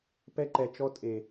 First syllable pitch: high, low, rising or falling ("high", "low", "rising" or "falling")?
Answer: high